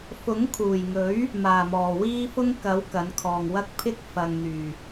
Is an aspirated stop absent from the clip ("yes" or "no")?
no